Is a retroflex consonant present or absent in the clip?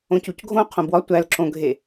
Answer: absent